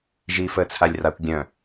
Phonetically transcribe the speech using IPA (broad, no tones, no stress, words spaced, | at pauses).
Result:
ʒiːfəːt͡sʰalʲrakʷ ɡʲœ̃